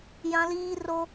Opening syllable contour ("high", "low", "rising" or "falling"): high